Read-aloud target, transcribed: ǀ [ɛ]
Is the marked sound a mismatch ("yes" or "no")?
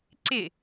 yes